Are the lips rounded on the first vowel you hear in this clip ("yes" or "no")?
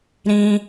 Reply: no